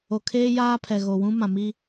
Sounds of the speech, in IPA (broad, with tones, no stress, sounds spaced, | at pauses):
o˨ kʰ eː˦ j aː˦ pʰ ɛ˨ ɣ o˨ w ũ˦ m ã˨ m i˦